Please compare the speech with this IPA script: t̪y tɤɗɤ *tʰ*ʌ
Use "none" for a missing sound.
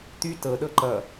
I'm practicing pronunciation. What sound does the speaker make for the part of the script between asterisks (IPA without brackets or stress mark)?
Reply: ǃ